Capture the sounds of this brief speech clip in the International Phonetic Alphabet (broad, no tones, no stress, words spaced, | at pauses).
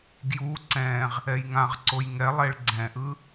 ɡju ǀɛ̃ʁ | ɛjŋãʁǀoj ŋɛlˠeɭ ɡ͡ǀɛ̃ʔɯ